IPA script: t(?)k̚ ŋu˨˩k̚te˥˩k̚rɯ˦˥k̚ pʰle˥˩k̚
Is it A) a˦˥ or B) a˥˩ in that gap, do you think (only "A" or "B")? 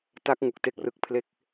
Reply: A